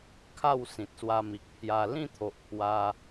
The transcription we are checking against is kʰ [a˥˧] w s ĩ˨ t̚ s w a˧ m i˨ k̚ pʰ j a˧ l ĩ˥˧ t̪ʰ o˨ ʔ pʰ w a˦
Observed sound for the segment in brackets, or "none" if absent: a˥˧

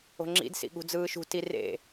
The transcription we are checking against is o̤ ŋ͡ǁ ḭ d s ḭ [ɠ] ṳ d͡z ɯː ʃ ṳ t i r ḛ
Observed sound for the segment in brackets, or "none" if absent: ɠ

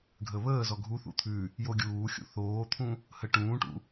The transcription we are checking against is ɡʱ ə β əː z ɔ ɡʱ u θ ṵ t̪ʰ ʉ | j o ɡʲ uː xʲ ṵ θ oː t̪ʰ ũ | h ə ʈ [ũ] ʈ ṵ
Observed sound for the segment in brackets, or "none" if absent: ũː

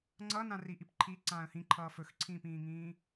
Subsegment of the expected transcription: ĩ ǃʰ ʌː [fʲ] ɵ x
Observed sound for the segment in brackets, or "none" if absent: f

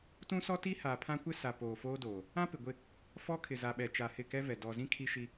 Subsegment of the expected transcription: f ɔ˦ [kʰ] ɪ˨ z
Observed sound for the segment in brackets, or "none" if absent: kʰ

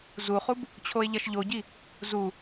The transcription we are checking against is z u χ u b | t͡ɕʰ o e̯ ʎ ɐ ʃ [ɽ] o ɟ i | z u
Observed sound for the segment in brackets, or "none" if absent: ʎ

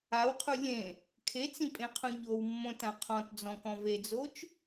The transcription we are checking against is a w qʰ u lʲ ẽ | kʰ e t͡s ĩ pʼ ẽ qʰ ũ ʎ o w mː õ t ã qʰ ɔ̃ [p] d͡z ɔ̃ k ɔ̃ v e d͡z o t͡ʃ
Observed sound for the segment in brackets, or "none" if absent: t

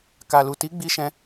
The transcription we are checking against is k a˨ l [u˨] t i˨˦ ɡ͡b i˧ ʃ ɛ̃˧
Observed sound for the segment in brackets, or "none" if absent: u˨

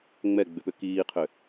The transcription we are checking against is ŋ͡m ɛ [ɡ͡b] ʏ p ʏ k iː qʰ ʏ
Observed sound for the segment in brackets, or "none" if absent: ɡ͡b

